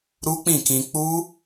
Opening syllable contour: high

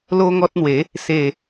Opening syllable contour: high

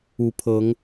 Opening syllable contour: rising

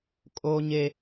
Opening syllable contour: high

